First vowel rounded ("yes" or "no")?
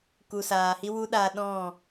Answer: yes